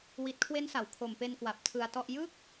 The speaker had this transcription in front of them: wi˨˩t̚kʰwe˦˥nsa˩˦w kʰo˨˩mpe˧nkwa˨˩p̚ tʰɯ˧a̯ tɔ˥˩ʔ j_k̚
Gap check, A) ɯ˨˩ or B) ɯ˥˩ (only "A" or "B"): B